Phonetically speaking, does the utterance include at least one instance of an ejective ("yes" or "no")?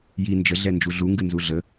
no